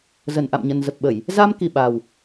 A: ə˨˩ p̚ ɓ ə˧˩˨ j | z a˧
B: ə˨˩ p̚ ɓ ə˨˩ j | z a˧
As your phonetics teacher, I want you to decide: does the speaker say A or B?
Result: A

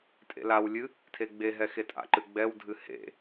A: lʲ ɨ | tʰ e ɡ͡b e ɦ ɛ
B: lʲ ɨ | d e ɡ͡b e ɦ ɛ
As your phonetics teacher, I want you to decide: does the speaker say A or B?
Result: A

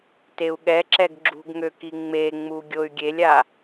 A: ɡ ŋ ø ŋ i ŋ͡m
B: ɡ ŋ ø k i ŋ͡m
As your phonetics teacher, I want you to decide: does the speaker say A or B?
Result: B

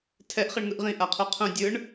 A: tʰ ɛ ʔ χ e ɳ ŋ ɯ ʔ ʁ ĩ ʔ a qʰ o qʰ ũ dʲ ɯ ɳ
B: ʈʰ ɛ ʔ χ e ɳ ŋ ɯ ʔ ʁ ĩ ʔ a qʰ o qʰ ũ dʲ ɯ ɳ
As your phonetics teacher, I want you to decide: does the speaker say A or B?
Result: A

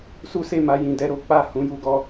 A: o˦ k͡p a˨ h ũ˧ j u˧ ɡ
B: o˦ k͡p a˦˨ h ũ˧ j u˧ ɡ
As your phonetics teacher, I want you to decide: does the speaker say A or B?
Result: B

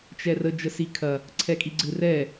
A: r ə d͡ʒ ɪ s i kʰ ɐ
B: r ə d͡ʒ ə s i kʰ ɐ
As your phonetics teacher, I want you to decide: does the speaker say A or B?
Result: B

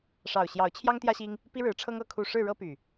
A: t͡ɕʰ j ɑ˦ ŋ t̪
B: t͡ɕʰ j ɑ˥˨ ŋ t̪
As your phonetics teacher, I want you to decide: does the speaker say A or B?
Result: A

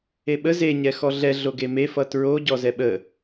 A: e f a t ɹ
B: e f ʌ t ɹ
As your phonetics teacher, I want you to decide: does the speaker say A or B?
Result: B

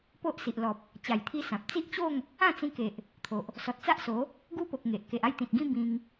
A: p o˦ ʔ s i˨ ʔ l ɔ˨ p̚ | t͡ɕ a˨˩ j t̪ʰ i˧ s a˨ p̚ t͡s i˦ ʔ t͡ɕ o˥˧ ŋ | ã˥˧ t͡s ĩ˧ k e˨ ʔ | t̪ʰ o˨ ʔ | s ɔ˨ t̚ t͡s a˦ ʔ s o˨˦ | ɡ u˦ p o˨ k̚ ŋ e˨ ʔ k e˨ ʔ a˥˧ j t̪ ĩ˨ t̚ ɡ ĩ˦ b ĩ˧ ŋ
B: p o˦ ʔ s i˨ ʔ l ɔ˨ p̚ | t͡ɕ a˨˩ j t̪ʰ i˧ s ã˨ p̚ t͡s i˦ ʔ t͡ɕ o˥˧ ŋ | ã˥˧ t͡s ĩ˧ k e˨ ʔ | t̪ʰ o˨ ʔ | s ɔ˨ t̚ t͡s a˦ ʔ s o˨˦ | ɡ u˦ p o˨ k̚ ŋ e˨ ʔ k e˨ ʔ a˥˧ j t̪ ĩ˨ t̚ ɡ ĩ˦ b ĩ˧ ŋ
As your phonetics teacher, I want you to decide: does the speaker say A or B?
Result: B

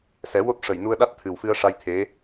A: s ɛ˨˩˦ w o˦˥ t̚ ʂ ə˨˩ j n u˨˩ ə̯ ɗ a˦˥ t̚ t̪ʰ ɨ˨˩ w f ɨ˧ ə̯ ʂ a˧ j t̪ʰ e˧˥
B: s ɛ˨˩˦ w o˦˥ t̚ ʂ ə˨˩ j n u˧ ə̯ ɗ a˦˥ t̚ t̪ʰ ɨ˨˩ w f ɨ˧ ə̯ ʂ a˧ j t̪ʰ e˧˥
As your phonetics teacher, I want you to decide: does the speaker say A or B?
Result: B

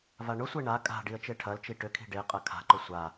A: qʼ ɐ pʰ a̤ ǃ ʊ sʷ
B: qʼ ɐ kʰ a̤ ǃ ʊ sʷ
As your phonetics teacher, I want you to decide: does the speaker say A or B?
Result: B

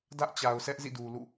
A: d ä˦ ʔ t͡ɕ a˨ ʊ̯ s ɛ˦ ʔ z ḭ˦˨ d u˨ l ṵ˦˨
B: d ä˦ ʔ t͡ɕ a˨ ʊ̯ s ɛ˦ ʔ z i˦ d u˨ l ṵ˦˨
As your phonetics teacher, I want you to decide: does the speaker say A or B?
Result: A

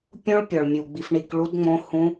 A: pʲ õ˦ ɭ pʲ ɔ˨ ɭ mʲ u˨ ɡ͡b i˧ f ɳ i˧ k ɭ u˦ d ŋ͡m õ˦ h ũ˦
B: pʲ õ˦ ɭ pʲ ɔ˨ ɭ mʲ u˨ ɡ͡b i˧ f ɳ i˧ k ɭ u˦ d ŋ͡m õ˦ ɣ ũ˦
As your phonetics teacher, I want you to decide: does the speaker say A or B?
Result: A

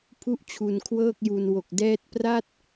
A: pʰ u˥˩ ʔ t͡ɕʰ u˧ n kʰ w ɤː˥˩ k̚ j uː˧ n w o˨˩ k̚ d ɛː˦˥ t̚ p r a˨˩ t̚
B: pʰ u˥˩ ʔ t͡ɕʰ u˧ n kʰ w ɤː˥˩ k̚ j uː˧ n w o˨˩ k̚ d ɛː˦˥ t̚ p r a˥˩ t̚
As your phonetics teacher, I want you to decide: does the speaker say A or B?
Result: B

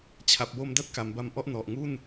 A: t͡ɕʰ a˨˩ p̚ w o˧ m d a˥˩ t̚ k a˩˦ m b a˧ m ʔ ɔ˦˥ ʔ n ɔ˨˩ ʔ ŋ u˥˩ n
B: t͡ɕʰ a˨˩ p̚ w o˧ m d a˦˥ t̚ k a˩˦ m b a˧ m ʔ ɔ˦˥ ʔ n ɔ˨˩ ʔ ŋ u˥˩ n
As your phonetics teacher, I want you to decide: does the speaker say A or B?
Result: A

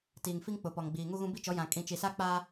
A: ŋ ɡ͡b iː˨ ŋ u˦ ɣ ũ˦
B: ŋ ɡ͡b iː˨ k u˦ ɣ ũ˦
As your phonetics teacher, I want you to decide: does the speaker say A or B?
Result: A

